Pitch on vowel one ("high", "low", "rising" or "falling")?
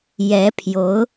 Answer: rising